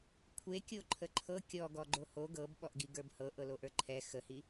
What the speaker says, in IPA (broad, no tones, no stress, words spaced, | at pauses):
kʷʰekʲo ǃʰəǃʰɤ kʲɔ ɡɔɡ͡ǃoho ɡɤb ɓɔʔɡiɡə˞bhɤ ʔɤloʔə˞ǃʰɛ xəhi